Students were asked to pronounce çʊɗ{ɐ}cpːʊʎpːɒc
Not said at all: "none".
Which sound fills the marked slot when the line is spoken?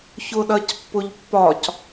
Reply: ɐ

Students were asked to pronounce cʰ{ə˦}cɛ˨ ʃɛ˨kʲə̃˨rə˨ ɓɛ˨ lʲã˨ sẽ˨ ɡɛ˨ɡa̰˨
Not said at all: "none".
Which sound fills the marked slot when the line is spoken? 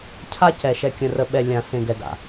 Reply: a˦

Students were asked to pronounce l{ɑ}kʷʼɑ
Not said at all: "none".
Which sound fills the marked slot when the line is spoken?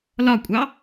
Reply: ɒ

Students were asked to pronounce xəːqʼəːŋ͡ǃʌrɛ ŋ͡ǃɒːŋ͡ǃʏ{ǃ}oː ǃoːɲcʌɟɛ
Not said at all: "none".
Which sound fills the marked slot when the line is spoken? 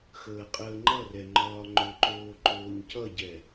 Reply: ǃ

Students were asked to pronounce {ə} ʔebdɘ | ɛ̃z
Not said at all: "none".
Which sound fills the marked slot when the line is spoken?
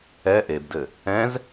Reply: ɛ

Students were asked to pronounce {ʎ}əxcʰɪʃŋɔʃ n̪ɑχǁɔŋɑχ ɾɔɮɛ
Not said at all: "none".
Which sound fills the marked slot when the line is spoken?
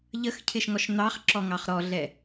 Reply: ʎ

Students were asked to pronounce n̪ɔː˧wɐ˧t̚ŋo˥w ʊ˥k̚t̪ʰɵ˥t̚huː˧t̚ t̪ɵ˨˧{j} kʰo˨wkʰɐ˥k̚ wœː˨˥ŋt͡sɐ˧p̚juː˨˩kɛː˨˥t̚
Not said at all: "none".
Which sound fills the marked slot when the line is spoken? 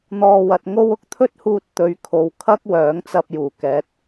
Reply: ɥ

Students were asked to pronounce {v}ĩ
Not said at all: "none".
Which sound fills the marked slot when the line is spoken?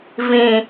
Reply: v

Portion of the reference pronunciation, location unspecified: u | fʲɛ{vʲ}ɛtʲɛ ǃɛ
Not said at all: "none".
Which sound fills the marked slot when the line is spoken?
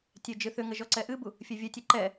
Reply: vʲ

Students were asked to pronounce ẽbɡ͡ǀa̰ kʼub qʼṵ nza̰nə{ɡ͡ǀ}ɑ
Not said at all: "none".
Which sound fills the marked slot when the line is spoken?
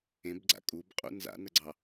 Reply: ɡ͡ǀ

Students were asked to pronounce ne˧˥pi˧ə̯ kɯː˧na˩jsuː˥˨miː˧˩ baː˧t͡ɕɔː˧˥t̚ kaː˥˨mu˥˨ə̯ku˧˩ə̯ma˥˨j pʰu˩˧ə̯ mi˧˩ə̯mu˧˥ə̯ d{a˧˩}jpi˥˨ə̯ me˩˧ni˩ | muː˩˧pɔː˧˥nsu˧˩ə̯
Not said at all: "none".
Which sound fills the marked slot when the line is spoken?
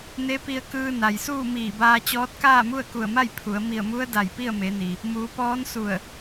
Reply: a˧˩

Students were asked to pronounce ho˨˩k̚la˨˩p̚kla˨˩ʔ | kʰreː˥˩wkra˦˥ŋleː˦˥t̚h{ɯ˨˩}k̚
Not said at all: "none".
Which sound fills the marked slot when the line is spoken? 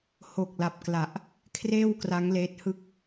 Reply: ɯ˥˩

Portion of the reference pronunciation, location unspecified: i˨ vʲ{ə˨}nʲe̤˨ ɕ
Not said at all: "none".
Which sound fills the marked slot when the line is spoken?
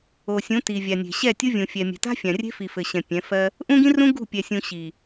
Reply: a˨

